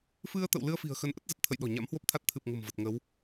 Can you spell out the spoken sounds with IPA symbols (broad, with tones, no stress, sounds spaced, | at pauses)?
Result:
f ɨ˧ ə̯ t̪ ə̰˧˨ w l ɨ˧ ə̯ f i̤˨˩ ə̯ x ə˨˦ n ʔ ə˦˥ t̚ z ə˨˩ t̚ t̪ʰ ə̰˧˨ j ɗ ɔ̤˨˩ ɲ a̰˧˥ m h w o˦˥ p̚ t̪ʰ a˦˥ t̚ t̪ʰ ɨ˨˩ p̚ ŋ ə̤˨˩ m v ə˨˩ t̚ ŋ ə˨˦ w